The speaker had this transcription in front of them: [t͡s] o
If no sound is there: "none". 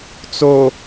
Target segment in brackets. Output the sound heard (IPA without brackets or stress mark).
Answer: t͡s